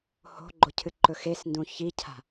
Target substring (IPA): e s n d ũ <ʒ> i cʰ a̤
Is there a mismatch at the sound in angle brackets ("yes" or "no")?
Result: yes